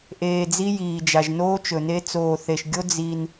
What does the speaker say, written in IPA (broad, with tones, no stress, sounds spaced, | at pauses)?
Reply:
ʔ eː˨ d͡z i˦ j iː˨ d͡ʒ a˨ ʒ n oː˦ t͡ʃ ɵ˨ n e˦ t͡s oː˨ θ e˨ ʃ ɡʲ o˦ d͡z i˦ n